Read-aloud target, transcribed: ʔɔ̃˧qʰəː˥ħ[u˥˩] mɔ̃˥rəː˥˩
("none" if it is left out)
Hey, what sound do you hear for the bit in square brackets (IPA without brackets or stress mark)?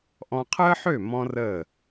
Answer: ø˥˩